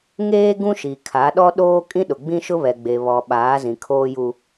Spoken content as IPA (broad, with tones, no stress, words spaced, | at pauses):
ŋeː˦ ɡũ˦ʃi˨kʰa˨˦ɗɔ˦ ɗoː˦ kʼĩ˦ɗʊ˨ɡ͡bĩ˦ʃʊ˦ βɛ˨ɡ͡be˨ βɔ˨ ɓaː˨˦zĩ˨kʰoː˦ju˦